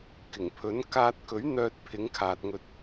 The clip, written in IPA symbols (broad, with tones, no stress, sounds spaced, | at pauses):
k ɪ˨˩ ŋ pʰ ɵ˨˥ n k aː˧ t̚ k ɵ˨˥ ɥ n̪ œː˨ t̚ pʰ ɪ˨˥ ŋ kʰ aː˨ t̚ ŋ ɵ˧ t̚